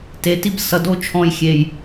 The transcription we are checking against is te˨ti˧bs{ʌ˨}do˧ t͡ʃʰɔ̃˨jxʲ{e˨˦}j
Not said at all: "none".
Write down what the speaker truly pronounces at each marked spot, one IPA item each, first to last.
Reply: ʌ˨, e˨

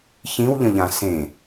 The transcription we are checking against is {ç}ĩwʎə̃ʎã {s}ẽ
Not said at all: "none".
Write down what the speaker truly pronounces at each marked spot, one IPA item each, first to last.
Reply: ç, s

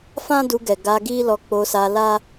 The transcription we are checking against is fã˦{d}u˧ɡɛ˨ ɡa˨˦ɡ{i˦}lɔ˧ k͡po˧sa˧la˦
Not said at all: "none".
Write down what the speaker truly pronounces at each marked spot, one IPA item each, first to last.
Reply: d, i˦

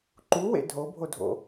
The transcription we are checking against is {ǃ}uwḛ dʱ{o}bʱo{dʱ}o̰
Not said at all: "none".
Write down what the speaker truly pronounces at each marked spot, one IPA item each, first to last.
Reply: ǃ, o, dʱ

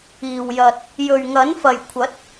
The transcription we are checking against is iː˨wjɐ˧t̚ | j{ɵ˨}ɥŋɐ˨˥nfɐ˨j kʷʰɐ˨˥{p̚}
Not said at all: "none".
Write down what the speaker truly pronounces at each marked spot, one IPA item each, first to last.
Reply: ɵ˨, t̚

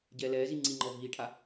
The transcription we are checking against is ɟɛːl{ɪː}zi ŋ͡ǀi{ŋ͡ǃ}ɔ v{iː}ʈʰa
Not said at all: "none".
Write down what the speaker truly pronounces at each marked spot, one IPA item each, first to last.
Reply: ɛː, ŋ͡ǃ, iː

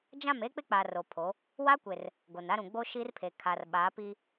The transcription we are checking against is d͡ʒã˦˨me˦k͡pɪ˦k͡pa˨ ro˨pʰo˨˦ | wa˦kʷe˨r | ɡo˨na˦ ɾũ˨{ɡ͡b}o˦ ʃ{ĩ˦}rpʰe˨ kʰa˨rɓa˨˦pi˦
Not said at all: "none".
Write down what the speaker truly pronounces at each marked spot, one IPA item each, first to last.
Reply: ɡ͡b, i˦

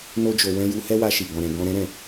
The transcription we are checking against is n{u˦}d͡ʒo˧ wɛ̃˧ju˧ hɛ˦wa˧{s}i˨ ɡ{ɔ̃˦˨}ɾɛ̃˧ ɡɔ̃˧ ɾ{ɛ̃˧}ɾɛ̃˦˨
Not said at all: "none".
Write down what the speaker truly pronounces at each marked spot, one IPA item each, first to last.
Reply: o˦, ʃ, ɔ̃˧, ɛ̃˦

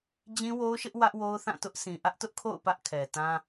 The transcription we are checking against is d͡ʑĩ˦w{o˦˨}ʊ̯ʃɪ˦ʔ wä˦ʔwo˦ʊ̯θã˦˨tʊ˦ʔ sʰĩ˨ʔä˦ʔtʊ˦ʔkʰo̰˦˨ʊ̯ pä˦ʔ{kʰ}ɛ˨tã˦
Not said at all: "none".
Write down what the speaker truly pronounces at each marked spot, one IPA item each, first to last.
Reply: o˦, kʰ

